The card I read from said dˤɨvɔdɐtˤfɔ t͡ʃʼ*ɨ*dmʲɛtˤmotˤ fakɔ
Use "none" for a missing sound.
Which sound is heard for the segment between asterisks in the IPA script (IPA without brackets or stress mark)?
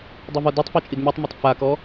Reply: i